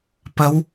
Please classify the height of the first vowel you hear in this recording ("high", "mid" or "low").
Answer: low